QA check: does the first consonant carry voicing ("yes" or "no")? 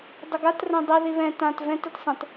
yes